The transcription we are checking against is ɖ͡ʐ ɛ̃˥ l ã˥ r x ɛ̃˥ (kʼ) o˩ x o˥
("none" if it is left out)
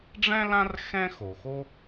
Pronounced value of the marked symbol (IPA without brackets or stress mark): x